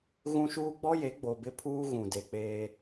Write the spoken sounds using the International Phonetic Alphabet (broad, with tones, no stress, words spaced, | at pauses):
ɣũ˦ʃuː˦ ɡ͡bɔ˦je˨˦ ɡ͡bo˨bɪ˦pʰuː˦ ɣũ˨de˨k͡peː˦